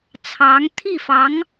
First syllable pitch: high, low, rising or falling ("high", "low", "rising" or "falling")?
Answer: rising